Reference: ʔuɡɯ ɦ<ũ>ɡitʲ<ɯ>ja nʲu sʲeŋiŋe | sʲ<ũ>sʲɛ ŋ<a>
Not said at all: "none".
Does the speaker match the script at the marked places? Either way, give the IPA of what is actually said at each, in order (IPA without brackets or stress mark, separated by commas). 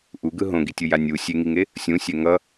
õ, ɯ, ũ, ʌ